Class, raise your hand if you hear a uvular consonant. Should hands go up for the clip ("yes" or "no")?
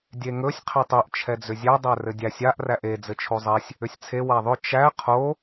yes